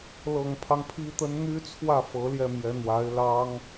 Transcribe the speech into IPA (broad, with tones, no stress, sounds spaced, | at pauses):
l ɤ˨˩ ŋ pʰ ɑ˦ ŋ pʰ i˥ t̪ ə˥ n n̪ y˥ t͡sʰ w ä˥˩ f ɤ˧˥ l j ɛ˥˩ m j ɛ˧˥ n̪ w a˧˥ ɪ̯ l ɑ˥ ŋ